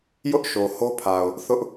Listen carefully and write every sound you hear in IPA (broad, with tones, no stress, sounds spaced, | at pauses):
j ʊ˦ ʔ ʃ o˨ h o˦ pʰ a˨ ʊ̯ | θ ʊ˦ ʔ